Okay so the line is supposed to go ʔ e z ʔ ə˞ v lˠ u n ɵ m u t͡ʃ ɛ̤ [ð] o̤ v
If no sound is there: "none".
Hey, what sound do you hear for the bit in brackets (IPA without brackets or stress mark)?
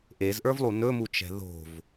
ð